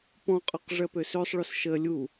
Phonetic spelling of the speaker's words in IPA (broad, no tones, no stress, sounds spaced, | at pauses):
p ɔ̃ qʼ ɔ q ʐ ɜ p ø s ø sˤ ɭ o s ʃ ə lʲ u